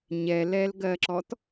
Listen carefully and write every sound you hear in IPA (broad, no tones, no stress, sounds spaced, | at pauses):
ɲ ɛ l ɛ l ɡ ɜ ǁ ɔ t